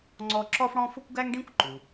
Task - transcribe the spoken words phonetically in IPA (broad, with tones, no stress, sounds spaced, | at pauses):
ŋ͡ǀ ɔ˦ ǁ ɔ˥ f ɽ ɔ̃˦ f ʊ˥ kʷ ɡ æ˥ ŋ ɖ ĩ˥ kʷ ǃ u˩